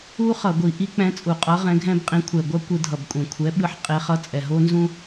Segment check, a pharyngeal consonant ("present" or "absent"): present